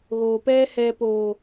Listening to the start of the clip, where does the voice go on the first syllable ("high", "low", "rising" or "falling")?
low